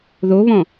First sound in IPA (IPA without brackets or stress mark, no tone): ð